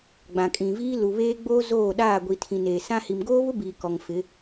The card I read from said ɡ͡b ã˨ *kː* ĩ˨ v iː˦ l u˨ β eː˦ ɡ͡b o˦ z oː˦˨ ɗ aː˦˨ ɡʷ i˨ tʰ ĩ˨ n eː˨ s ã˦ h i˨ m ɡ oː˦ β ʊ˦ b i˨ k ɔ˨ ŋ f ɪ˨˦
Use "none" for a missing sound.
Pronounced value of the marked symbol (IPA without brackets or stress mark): kʼ